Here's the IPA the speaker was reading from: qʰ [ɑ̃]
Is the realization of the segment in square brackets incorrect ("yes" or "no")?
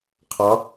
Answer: yes